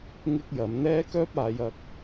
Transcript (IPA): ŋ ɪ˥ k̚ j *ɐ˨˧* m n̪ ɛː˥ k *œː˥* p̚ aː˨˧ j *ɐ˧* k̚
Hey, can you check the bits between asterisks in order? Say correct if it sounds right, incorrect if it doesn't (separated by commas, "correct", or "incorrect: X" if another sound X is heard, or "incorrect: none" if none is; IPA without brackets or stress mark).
correct, correct, correct